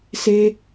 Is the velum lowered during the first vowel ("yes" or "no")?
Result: no